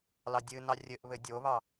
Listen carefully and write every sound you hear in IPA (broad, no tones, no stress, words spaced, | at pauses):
lɑdʲɨnɑ rʲɘʔ βɘdʲoβɑ